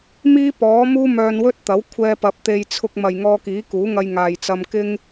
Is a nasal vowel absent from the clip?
yes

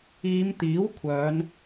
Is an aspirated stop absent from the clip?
no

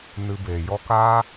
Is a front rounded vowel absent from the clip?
yes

